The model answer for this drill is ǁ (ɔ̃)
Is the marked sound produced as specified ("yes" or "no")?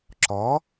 no